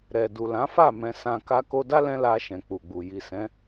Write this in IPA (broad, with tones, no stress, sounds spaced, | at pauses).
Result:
ɾ ɛ˨ d u˨ l ã˨˦ f a˦˨ m ɛ̃˧ s ã˧ k a˧ k o˧ d a˦ l ɛ̃˦ l a˧ ʃ ɛ̃˨ k͡p u˨ ɡ͡b u˨ j i˨ s ɛ̃˨˦